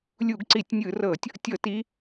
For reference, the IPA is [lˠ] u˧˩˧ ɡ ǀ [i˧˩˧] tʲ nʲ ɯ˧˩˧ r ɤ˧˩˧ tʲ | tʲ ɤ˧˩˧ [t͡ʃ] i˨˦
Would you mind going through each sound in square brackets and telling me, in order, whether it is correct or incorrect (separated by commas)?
incorrect, correct, incorrect